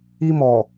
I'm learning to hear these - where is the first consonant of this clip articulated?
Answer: lips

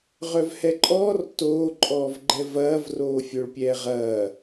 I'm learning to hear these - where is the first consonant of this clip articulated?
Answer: uvula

